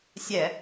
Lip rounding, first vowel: unrounded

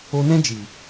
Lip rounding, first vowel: rounded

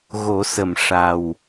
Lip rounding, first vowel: rounded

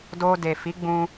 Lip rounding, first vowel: rounded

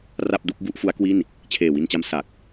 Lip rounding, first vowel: unrounded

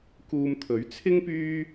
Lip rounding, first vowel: rounded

